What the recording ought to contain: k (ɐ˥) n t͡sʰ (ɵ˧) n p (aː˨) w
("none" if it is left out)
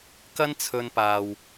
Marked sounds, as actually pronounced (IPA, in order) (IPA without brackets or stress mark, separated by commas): ɐ˥, ɵ˧, aː˨